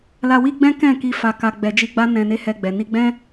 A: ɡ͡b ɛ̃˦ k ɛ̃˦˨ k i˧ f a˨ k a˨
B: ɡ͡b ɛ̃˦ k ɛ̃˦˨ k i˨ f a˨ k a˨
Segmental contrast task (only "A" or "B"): A